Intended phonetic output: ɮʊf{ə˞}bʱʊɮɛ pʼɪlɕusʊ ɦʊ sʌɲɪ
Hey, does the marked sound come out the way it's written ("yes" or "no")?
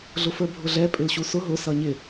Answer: yes